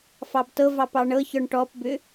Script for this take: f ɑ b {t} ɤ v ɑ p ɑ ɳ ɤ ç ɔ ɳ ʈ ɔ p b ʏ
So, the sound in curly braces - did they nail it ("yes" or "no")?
yes